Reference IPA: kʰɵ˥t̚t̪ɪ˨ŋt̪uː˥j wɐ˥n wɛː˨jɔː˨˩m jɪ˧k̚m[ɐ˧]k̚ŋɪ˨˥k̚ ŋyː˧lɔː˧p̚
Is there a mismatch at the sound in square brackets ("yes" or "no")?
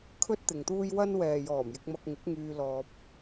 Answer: no